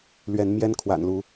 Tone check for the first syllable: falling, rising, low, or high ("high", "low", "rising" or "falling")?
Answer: rising